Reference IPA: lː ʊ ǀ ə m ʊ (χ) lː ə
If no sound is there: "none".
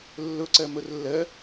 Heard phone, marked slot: r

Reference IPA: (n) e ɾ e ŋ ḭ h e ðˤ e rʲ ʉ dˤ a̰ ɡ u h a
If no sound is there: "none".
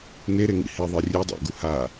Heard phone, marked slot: n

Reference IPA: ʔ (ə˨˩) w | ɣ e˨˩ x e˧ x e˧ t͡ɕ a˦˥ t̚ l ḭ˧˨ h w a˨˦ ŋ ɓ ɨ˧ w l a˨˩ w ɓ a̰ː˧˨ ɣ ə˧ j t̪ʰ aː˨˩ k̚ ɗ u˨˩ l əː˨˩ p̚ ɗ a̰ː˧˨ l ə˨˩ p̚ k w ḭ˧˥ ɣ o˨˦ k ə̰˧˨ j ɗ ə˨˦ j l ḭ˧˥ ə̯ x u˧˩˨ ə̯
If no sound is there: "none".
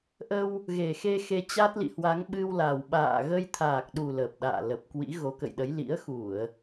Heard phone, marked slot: ə˧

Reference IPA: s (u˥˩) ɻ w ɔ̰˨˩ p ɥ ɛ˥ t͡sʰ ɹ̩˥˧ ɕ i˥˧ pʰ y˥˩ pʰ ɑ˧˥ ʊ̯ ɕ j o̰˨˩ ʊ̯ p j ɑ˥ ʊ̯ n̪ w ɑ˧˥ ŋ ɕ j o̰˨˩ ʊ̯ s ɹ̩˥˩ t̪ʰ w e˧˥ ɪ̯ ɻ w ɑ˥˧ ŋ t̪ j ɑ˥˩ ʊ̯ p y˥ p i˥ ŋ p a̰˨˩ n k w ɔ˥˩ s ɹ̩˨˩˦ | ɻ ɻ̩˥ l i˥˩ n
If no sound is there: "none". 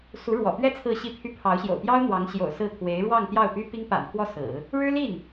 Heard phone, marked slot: u˧˥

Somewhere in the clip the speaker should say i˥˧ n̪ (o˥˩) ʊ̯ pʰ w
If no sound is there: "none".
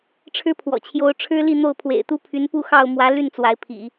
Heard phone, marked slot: o˥˩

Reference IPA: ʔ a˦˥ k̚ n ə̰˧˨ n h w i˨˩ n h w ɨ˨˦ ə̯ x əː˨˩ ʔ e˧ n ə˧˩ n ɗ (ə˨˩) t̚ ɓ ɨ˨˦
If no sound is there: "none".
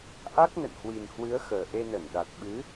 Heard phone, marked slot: a˨˩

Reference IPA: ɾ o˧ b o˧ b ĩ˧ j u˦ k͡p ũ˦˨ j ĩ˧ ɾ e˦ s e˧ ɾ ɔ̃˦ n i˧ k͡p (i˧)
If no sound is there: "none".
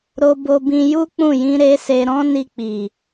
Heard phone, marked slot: i˨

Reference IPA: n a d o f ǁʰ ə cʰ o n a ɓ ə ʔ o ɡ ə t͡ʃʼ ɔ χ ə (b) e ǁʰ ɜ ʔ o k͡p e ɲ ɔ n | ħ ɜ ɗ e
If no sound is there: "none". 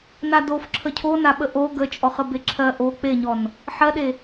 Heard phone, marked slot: b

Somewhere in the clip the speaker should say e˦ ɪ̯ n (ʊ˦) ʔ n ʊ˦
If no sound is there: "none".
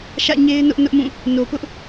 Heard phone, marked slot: ʊ˦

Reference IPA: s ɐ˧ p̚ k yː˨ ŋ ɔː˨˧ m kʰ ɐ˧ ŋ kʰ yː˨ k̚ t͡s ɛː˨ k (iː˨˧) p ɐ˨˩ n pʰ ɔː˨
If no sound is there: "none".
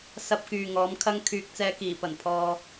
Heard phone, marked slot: iː˨˩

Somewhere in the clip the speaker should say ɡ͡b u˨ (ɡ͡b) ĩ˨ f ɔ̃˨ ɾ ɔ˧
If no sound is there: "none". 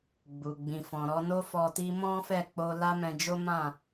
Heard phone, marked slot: ɡ͡b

